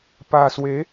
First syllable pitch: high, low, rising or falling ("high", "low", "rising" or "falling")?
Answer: low